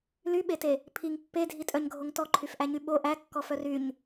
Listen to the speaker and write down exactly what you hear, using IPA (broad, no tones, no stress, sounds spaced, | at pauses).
l y ɓ e t e | pʰ i ŋ pː e dʱ i tʼ œ ɲ ɡʱ o ŋ t ɔ ǃʰ y f ʔ æ ɲ y ɓ o ʔ æ kː ɔ f œ r y ɲ